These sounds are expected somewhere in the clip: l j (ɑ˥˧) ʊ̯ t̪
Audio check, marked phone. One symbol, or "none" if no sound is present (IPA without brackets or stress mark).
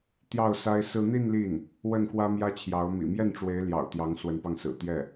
ɑ̰˨˩